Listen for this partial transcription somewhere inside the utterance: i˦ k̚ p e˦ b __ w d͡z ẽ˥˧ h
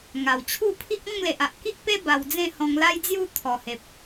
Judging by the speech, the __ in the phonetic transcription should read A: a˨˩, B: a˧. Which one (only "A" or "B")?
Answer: B